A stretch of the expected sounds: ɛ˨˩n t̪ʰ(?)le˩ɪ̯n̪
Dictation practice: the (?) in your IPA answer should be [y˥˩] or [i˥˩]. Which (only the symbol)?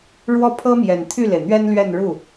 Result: y˥˩